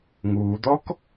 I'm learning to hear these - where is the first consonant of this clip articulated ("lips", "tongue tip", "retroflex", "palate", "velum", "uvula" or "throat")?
velum